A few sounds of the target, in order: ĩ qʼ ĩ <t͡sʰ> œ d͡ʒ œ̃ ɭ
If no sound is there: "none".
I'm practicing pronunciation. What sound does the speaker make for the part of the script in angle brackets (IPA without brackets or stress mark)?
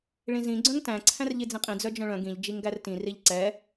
d͡z